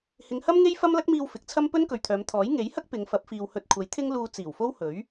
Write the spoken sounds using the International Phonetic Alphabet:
hɪ˨˧ŋhɐ˥mŋe˥j fɐ˥mlɐ˥k̚ miː˧w fɪ˨˥k̚ t͡sʰɐ˥mpɵ˥nkɵ˨ɥt̪ʰœː˨˧m t̪ʰɔː˨˥jŋe˨˥jhɐ˥k̚ pɪ˨˧ŋfɐ˨˥p̚ fiː˨w hɵ˨t̚kʷʰɐ˨˥j t̪ʰɪ˥ŋluː˧ t͡siː˨˩wfo˥w hɵ˨˥ɥ

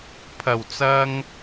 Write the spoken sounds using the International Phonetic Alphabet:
pʰɐ˨˩wt͡sɐ˧ŋ

